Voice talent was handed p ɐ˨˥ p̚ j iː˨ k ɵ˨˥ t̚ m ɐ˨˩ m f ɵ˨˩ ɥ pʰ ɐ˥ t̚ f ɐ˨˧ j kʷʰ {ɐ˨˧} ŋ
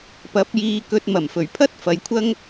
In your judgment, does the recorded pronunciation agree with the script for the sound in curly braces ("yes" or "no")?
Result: no